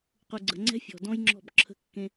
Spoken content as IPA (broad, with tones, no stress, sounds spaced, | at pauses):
q u˨ ɡ͡ǀ ə̤˨ ŋ͡ǀ ɛ̤˦ fʲ ɔ̤˨ d ɔ̃˦ j ŋ͡ǁ ɔ̤˦˨ b ǁʰ ə̤˦ kː ẽ˦